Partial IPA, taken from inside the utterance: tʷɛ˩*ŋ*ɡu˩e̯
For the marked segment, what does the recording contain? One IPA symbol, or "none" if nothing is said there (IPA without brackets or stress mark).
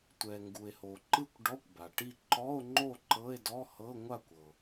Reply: ŋ